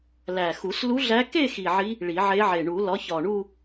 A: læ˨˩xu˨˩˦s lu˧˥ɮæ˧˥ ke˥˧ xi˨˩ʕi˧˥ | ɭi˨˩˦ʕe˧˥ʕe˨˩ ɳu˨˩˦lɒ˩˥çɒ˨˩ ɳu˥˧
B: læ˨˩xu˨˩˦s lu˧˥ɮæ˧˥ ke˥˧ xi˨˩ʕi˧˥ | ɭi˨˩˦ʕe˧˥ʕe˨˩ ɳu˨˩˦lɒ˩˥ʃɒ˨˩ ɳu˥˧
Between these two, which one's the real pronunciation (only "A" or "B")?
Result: A